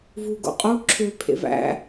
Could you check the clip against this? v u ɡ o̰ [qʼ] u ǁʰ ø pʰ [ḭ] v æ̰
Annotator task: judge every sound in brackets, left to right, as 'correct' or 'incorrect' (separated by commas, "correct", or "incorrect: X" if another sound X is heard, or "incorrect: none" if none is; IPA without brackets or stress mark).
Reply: correct, incorrect: ḛ